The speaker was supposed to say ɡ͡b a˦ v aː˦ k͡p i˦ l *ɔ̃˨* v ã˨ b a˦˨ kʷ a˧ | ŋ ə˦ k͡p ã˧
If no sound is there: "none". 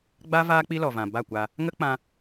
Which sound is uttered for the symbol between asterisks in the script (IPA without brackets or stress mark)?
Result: ɔ˨